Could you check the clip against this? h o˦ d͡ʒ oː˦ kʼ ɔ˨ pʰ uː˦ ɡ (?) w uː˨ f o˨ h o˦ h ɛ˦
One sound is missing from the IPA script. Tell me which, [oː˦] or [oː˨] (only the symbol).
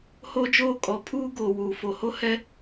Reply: oː˨